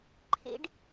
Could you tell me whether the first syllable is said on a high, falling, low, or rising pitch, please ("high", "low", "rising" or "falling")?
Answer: high